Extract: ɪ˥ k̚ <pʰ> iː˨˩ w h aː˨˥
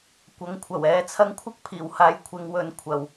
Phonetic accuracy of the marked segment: correct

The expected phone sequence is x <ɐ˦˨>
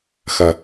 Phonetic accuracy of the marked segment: incorrect: ɐ˨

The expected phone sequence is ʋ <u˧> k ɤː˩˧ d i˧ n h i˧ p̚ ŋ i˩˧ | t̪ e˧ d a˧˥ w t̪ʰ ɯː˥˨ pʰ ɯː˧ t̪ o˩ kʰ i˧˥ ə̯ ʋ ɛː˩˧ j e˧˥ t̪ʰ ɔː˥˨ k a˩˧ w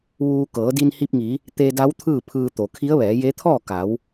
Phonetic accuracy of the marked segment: incorrect: uː˧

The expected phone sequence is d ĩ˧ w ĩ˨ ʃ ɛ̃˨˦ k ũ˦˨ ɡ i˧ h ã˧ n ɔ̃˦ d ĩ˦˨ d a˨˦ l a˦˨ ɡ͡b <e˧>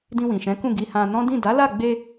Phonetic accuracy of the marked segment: correct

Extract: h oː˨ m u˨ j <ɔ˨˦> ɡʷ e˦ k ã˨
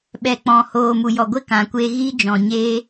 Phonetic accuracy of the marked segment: incorrect: ɔ˨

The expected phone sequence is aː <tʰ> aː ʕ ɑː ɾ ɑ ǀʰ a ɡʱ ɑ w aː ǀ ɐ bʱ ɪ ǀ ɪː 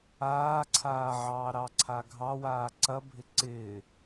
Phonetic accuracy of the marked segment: incorrect: ǀʰ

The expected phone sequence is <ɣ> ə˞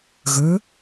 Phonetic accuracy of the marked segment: correct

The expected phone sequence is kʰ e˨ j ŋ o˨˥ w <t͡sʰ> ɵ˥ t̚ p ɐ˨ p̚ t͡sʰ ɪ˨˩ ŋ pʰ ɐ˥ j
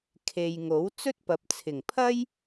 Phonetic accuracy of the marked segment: incorrect: t͡s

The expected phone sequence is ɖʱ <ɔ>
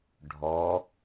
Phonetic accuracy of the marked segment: correct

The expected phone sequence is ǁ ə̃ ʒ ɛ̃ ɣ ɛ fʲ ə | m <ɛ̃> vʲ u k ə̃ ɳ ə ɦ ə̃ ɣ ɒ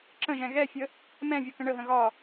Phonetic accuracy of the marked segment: correct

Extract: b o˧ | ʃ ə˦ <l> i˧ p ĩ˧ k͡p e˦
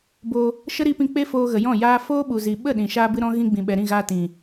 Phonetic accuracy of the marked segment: incorrect: ɾ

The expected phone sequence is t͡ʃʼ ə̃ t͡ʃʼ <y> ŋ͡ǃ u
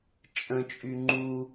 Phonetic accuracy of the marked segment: correct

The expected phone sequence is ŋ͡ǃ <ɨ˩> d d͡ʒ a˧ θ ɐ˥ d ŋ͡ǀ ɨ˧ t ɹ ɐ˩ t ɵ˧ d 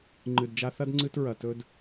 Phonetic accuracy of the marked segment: correct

